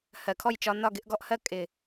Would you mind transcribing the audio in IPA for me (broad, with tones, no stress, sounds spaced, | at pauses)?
h ɜ˨ kʰ ɔ˦˨ j t͡ʃ ɒ˧ n ɒ˦˨ ɡ ɪ˧ ʔ ɡ ɔ˧ ʔ h ɜ˦ kʼ ɪ˨